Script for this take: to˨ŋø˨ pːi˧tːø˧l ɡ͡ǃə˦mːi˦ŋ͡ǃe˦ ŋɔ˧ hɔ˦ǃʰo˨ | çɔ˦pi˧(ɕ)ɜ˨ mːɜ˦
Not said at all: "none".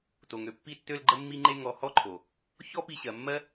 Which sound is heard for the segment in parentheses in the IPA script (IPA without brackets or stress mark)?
ɕ